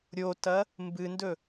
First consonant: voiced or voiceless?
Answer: voiced